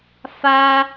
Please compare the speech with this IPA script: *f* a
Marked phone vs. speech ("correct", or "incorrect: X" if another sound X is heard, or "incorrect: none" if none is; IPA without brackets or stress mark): correct